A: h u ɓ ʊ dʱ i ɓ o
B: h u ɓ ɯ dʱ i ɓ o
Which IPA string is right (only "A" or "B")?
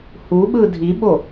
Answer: B